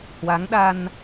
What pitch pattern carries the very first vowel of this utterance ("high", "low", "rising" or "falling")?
rising